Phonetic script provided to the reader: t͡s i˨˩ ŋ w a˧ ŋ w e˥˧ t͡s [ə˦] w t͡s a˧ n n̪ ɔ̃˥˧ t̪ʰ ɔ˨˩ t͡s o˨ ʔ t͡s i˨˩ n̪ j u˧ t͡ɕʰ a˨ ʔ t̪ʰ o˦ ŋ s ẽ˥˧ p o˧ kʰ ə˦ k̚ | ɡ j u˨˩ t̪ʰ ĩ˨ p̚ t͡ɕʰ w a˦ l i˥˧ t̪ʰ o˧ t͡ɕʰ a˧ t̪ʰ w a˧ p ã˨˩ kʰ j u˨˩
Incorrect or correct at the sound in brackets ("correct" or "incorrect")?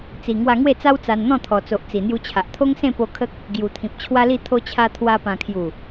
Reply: incorrect